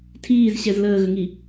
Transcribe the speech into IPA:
tʰ iː z ɕ ɛ z l əː ɣ ə ŋ i

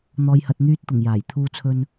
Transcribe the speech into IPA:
n̪ ɔː˨ j h ɐ˨ t̚ n̪ yː˧ t̚ t̪ ʊ˨˩ ŋ j aː˨˩ j t̪ʰ uː˧ t͡sʰ ɵ˧ n

